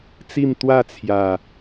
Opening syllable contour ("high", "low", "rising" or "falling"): falling